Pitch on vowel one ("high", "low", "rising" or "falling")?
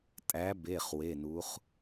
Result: rising